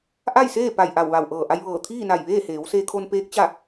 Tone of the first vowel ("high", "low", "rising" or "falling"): falling